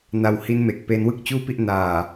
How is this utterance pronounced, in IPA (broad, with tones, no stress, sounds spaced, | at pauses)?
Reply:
n a˧ w h i˦˥ n m e˨˩ k̚ p e˧ n w ɯ˥˩ k̚ t͡ɕ uː˥˩ p i˥˩ ʔ n aː˨˩